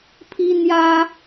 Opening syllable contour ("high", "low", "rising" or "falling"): high